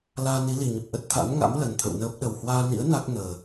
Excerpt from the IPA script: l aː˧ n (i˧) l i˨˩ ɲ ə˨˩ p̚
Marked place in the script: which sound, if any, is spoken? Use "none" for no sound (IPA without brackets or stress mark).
i˨˦